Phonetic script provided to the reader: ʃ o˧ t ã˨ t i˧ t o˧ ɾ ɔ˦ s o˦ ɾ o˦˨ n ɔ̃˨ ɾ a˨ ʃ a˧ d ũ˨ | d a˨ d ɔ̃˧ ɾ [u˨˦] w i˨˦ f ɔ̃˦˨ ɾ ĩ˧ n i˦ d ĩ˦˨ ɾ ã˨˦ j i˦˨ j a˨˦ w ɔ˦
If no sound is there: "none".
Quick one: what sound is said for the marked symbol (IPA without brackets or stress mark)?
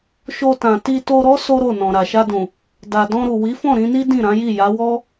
u˨